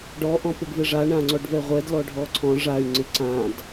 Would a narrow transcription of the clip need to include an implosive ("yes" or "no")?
no